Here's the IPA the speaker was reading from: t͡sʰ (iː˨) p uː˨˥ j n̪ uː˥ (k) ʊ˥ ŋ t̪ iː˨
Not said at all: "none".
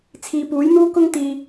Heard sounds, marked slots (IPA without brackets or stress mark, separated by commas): iː˨, k